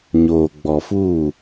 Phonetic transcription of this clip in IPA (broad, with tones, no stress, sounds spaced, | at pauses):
ɲ oː˨ ɡ͡b ɔ˨ f uː˦˨